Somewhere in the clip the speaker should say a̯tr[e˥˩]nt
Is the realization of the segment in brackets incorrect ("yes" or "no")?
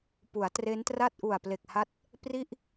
yes